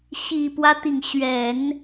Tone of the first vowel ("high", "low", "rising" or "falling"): low